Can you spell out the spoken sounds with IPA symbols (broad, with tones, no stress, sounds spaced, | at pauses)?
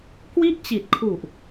k w i˥˩ ʔ t͡ɕ i˨˩ t̚ kʰ u˨˩ ʔ